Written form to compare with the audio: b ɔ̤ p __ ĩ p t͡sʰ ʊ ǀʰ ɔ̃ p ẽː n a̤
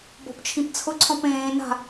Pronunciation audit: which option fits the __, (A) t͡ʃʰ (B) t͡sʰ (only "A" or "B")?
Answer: A